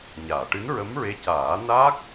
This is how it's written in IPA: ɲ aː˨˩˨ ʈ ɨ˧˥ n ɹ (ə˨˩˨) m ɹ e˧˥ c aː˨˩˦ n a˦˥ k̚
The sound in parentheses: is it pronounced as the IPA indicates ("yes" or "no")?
no